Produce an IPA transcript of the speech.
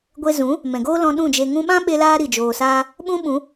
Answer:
ɡʷ e˧ z ũ˨˦ | m ɛ̃˨ ɡ oː˦ l ɔ̃˧ ɗ ũ˦˨ d͡ʒ e˧ ŋ ũ˧ ɓ ã˦ ɓ e˧ l aː˧ ɾ i˨ d͡ʒ oː˨ s aː˧ | ɓ ũ˦ ɓ ũ˨˦

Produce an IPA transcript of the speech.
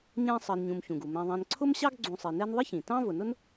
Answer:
ɲ ɛ̃˦ sˤ ɜ˨ n ɲ ũ˨ m ç ũ˩ ɡ u˩ m ɛ̃˨ ðˤ ɛ̃˨ n ǀʰ ʊ˥ m ɕ ɑ˥ ɡ ɡ͡ǀ ũ˨ sˤ i˩ n ɛ˦ n ðˤ ɪ˥ ç ĩ˩ t ɑ̃˥ v ʊ˩ n ʊ˥ n

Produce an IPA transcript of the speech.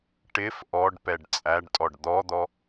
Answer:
ʈ ɪ f ʔ ɔ ɖ p ɛ ɖ t͡sʼ æ ɖ tʼ ɔ ɖ d̪ ɔ d̪ ɔ

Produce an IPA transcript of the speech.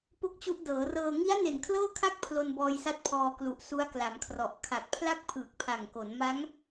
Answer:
p o˥˩ k̚ t͡ɕ u˦˥ ʔ d ɤː˩˦ r ɤː˧ ŋ i˦˥ a̯ n e˨˩ n kʰ l ɤː˥˩ kʰ a˥˩ k̚ pʰ l o˧ n b ɔː˧ j s a˦˥ t̚ pʰ ɔː˧ k l u˨˩ ʔ s u˦˥ a̯ k l a˩˦ m kʰ r ɔ˨˩ ʔ kʰ a˨˩ k̚ pʰ l a˥˩ k̚ pʰ ɯː˨˩ k̚ pʰ a˨˩ ŋ k o˩˦ n m a˦˥ ŋ

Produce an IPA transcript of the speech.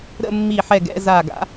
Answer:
ɾ ə̰˥˧ mː i˧˩ ħ ɛ˧˩ ɡ ɛ̰˥˧ z a˧˩ ɡ a̰˨˩˦

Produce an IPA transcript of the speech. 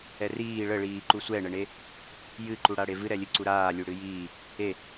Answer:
ɛ r iː ɭ ə ɭ iː ǃ u sʷ ɛ ɳ ə ɳ e | j ɨ ǃ u ɽ a ɽ e v ɨ ɾ ɛ lʲ ɨ ǀ u ɾ aː lʲ u ɽ ɨ j iː | e

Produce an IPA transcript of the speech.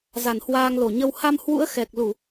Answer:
z a˧˩ n h w aː˧ ŋ l o˧˩ ɲ ə˧ w h a˧ m h w ṵ˧˥ ə̯ x ɛ˨˩ k̚ l u˧˩˨

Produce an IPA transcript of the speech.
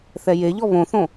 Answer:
θ ɛ j e ʎ ɔ β õ θ õ

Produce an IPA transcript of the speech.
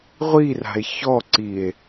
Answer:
ʁʷ i r a̤ e̯ ç ɔ ǀ i e̯

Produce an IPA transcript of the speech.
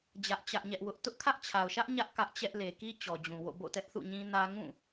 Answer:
d͡ʑ ä˦ ʔ t͡ɕ ä˦ ʔ ɲ ɛ˦ ʔ w ʊ˦ ʔ t ʊ˦ ʔ kʰ ä˦ ʔ t͡ɕʰ a˨ ʊ̯ ʃ ä˦ ʔ ɲ ä˦ ʔ k ä˦ ʔ t͡ɕ ɛ˦ ʔ l e˨ k i˦ t͡ɕ ɔ˨ d͡ʑ ũ˨ w o̰˦˨ b o̰˦˨ t ɛ˦ ʔ θ ṵ˦˨ ɲ ĩ˦ n ä˦ ŋ ũ˦˨

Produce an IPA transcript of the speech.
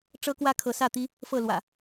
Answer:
ʈ͡ʂ ɤ˦ k w ä˦ kʰ ɤ˨˦ s ä˥˨ t̪ i˦ | f ɤ˥˨ l w ä̰˨˩

